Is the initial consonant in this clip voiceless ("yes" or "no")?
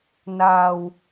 no